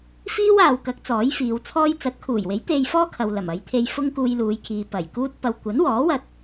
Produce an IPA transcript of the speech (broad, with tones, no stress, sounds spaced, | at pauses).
f iː˥ w aː˨ w k ɐ˨˥ k̚ t͡s ɔː˨˥ j f iː˨˧ w t͡sʰ ɔː˥ j t͡s ɐ˨˥ t̚ kʰ uː˨˩ j w e˨˥ j t̪ e˧ j f ɔː˥ kʰ ɐ˨ w l ɐ˨˩ m ɐ˨˧ j t̪ʰ e˧ j f ʊ˥ ŋ k uː˧ j l uː˨˧ j kʰ iː˨ p ɐ˨˩ j k uː˥ t̚ p ɐ˧ w kʷ ɐ˨˥ n w ɔː˨˥ w ɐ˧ t̚